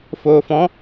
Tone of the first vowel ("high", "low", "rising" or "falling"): low